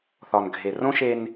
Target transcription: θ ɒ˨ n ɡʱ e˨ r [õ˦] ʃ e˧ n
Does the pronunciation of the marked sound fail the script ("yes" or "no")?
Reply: no